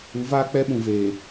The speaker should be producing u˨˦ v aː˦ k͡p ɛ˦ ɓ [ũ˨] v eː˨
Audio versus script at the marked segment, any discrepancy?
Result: no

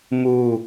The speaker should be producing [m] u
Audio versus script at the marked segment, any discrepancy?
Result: no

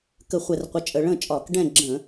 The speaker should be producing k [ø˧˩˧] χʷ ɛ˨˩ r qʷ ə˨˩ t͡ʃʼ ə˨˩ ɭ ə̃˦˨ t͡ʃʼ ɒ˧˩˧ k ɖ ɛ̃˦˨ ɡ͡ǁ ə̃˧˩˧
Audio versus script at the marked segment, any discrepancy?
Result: yes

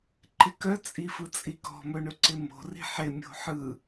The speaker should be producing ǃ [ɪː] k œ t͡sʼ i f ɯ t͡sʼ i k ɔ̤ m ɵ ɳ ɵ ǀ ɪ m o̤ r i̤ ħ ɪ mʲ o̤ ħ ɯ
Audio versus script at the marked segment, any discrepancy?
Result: yes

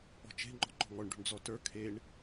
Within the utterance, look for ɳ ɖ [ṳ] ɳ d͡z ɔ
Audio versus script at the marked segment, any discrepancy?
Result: no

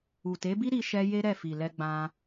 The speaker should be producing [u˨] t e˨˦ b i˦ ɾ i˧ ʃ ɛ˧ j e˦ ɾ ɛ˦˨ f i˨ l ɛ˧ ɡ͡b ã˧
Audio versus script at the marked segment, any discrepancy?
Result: no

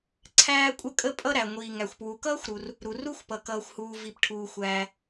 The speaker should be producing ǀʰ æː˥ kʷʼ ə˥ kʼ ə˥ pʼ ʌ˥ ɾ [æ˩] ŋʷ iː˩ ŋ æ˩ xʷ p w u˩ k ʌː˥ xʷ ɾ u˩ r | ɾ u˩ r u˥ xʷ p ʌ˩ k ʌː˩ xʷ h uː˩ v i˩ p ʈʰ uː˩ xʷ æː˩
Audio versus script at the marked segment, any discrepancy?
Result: no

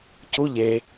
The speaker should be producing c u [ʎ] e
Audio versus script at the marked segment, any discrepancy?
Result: no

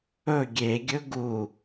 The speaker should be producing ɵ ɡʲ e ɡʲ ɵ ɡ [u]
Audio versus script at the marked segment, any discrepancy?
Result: no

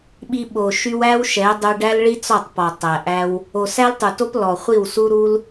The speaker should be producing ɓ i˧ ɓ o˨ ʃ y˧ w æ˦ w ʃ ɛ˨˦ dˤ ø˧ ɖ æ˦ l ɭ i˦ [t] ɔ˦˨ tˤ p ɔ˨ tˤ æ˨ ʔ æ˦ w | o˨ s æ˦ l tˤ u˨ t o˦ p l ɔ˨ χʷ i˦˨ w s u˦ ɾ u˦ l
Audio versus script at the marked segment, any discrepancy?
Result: yes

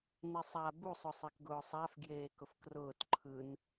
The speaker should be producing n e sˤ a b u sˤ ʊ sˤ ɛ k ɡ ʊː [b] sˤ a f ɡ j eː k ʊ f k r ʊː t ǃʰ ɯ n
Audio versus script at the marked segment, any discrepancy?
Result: yes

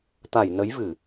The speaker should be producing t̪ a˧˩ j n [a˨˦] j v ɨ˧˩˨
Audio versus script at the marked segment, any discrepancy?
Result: yes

